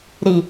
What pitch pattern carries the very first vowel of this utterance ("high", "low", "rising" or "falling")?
low